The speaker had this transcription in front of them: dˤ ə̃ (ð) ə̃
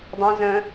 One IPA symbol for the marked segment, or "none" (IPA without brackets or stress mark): z